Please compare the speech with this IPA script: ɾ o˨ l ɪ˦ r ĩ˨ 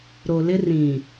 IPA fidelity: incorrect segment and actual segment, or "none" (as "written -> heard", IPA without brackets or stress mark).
none